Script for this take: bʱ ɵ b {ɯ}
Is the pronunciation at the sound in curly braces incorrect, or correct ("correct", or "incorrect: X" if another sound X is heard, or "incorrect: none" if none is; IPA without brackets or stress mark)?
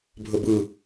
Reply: correct